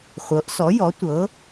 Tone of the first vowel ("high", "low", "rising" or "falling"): rising